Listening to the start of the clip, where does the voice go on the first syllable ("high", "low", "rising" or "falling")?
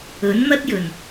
rising